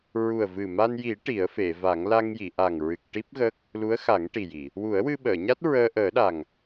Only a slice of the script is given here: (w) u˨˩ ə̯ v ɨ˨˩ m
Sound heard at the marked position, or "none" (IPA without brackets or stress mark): ɹ